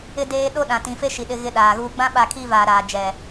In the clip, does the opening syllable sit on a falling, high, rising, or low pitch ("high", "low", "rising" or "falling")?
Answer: high